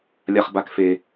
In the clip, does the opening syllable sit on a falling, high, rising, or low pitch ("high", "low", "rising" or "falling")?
low